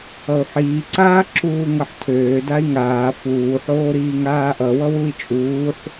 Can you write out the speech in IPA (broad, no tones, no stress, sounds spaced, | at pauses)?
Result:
ʌ u̯ ħ iː ǀ aː ǁ uː ŋ ʌ ħ tʰ øː d a i̯ ŋ aː f uː ħ oː ɾ iː ŋ aː ʔ ʌ w ʌ w u i̯ t͡ʃʼ uː ħ